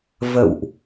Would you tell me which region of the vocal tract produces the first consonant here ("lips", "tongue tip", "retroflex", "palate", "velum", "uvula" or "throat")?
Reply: lips